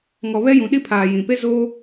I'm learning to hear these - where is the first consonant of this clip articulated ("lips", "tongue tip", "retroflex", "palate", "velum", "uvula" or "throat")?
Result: velum